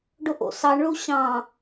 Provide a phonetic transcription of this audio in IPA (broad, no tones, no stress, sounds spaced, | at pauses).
ɖ o ʔ o̰ s ɑ ɳ ɭ u ɕ ɑ̃